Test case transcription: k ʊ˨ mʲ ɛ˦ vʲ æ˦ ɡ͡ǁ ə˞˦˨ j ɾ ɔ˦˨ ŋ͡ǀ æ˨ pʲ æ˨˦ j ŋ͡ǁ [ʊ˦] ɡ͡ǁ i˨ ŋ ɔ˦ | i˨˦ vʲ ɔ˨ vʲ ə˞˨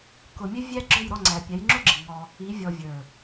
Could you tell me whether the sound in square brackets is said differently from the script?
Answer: no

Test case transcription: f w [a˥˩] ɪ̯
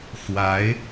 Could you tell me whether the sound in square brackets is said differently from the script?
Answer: yes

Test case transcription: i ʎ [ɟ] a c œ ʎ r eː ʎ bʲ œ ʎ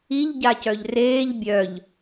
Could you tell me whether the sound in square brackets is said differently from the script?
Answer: no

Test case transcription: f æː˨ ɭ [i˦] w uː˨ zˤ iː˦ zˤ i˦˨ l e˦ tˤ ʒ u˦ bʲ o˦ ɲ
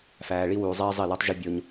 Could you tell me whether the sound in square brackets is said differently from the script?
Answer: no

